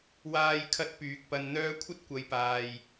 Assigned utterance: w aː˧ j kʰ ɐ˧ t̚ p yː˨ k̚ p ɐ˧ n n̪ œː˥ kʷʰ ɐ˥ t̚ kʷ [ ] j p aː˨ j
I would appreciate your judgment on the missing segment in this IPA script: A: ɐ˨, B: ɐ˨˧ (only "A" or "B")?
B